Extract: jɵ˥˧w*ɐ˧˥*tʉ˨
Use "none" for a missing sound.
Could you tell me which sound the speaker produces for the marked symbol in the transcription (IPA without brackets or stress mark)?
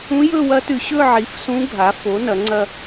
ɐ˧˥